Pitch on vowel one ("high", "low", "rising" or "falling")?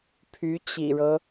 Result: rising